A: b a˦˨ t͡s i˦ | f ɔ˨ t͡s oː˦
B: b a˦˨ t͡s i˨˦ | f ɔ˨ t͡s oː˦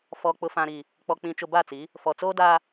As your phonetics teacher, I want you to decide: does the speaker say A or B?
B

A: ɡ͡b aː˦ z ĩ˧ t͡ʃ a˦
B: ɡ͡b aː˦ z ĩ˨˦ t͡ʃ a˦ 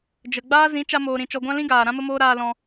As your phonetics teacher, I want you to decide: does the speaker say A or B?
B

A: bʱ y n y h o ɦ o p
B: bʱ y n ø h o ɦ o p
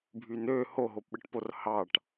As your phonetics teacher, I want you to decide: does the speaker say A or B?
B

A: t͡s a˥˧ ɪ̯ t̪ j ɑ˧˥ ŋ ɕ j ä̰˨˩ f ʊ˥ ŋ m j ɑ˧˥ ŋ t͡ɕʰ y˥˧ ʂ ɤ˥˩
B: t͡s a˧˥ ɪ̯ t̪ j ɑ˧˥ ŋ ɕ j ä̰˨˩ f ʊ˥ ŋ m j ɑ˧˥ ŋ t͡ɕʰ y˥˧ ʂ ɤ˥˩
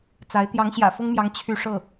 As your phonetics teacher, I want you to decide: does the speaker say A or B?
B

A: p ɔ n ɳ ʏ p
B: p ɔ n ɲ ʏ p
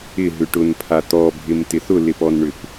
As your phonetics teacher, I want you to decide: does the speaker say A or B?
A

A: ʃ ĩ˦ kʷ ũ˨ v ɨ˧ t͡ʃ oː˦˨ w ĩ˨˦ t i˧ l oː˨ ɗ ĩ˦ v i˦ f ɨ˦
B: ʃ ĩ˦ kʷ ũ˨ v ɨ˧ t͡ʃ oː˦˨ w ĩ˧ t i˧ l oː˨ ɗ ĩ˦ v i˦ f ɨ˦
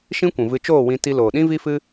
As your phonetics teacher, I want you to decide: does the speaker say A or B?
B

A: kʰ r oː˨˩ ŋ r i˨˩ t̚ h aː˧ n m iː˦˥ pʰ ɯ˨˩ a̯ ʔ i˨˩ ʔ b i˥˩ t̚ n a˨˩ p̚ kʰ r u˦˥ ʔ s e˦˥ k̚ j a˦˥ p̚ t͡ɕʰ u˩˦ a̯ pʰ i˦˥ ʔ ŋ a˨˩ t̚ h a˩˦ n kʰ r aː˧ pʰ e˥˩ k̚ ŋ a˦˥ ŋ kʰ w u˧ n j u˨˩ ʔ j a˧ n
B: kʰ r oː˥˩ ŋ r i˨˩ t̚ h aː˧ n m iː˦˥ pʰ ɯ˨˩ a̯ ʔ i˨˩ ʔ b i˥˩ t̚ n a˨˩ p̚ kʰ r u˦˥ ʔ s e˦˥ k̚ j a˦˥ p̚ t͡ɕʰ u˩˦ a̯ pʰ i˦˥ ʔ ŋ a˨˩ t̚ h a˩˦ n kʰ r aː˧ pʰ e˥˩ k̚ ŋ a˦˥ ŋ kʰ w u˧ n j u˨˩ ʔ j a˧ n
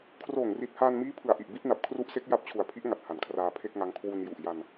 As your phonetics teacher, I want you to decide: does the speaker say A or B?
A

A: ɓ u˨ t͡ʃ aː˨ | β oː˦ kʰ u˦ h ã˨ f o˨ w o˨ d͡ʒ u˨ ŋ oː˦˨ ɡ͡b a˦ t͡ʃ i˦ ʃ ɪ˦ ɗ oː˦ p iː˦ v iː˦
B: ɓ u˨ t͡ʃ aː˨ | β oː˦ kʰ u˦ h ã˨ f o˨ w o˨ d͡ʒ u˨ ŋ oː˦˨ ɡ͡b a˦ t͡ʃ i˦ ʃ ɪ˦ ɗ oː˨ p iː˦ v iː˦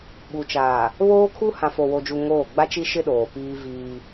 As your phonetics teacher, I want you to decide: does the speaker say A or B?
B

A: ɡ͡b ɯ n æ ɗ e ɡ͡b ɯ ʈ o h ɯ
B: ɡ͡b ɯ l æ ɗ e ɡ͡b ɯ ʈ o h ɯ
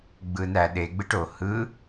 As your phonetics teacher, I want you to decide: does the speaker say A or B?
A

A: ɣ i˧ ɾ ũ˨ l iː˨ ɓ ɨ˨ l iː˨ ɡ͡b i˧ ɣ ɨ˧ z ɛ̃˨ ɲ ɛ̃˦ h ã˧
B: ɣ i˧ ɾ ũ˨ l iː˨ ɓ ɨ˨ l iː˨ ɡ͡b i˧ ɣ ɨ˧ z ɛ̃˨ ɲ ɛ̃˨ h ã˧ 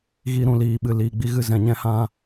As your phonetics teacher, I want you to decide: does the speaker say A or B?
A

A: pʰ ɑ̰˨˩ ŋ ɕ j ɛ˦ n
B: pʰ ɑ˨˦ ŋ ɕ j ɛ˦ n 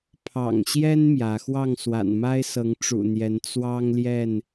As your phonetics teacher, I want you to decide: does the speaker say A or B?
A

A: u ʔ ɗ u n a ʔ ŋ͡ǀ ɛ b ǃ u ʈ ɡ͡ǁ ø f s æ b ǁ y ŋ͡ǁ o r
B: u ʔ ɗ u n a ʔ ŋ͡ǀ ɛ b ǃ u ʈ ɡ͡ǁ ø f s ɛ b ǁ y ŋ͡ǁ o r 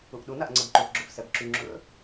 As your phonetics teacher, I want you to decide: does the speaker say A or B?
B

